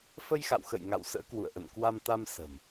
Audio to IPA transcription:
f ə˧ j x a̰˧˨ w x ə̰˧˨ j ŋ a̰˧˨ w s ə̰ː˧˥ k w ṵ˧˨ ə̯ ʔ ə̰˧˨ n k w a˧ m t̪ a˧ m s ə̤˨˩ m

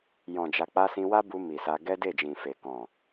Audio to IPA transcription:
j ɔ̃˨ d͡ʒ a˨ k͡p a˧ s ĩ˧ w a˦ b u˧ m i˨ s a˧ ɡ ɛ˦ d e˦˨ d͡ʒ ĩ˨ f e˨ k ɔ̃˨

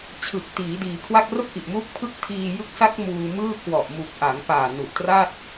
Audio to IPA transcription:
t͡ɕʰ ɯ˨˩ k̚ t iː˩˦ d iː˩˦ kʰ w a˥˩ k̚ r o˥˩ k̚ ʔ i˨˩ ʔ m uː˦˥ k̚ pʰ ɯ˦˥ k̚ tʰ iː˧ j ɯ˦˥ k̚ s a˦˥ k̚ m uː˧ m ɯː˥˩ k w ɔ˨˩ ʔ m u˨˩ k̚ ʔ a˩˦ ŋ p aː˨˩ n u˨˩ ʔ t r a˥˩ t̚

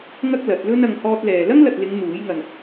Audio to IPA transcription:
ŋ ɐ˥ k̚ l ɐ˨˥ t̚ l ɵ˥ n ɐ˨˧ ŋ h ɔː˧ t̚ l ɛː˨ l ɐ˥ ŋ l ɐ˨ t̚ l ɪ˨˧ ŋ n̪ uː˨˥ j ŋ ɐ˨ n

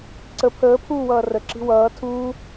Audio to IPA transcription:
ǀ ə pʰ əː pʰ uː w ʌː r ə ǁ i̤ w ʌː tʰ uː

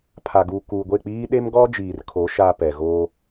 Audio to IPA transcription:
pʰ a˨ ɡ uː˨ k uː˨ ɡʷ e˦˨ k͡p iː˦ ɗ e˦ m ɡ ɔ˦ d͡ʒ iː˨ r kʰ o˨˦ ʃ aː˦ p ɛ˨ ɣ oː˦

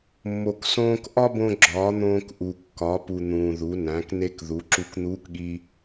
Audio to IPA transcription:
mː o˩ k s õː˧ k ʔ ɒ˥ b õ˧ ɡ͡ǁ ɒː˩˧ n̪ õː˧ k ʔ u˩ kː ɒ˩˧ p u˩ n̪ ũː˩ ð u˩˧ n æ̃˩˧ k n e˧ k ð u˩˧ ǁ u˧ k n̪ uː˧˥ k ɠ i˧

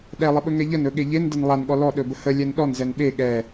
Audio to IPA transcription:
ɗ ɛ lˠ ə ɓ ɵ ŋ ɛ ʎ ə n ɵ ɠ e ʎ e n d ə n lˠ a n ɠ ɔ l ɔ ɗ ɵ b ə h ə lʲ ɛ n ɗ ɔ n z ɛ n ɓ e ɠ ɛ

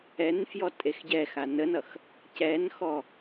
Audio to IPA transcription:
ɛ n f j ɔ tʼ e x ɟ ɛ x a n ə n ʌ x | c ɛ n x ɔ

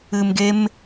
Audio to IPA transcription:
ɨ˨ m ɡ e˧ m

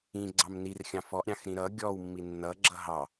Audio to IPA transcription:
ĩ ɡ͡ǀ ɑ m n i r xʲ ɑ̃ f ɔ ʔ ɾʲ ɑ̃ x ɾ ĩ ɾ ʌ ɡʲ ɔ w mː i nː ʌ ɡ͡ǁ ʌ ɦ ɑ

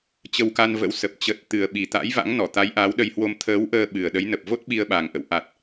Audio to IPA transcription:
t͡ɕ ə˧ w k a˧ n v ə̰˧˥ w s ə˨˩ p̚ t͡ɕ ə˨˩ t̚ t̪ ɨ˨˩ ə̯ ɓ i˨˩ t̪ a̰˧˥ j v a̰˧˥ ŋ n ɔ˧˩ t̪ a˨˦ j ʔ a˨˦ w ɗ ə˧ j h w o˧ m t̪ʰ əː˨˦ w ʔ əː˧ ɓ ɨ˨˩ ə̯ ɗ ə˨˦ j n ə˨˩ p̚ v o˦˥ t̚ ɓ i˧ ə̯ ɓ a˨˩ ŋ ʔ ə̰˧˨ w ʔ a˨˩ t̚

